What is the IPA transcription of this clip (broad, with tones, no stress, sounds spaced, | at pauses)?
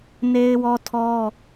n e˦ ɪ̯ w ɔ˦ tʰ ɔ˦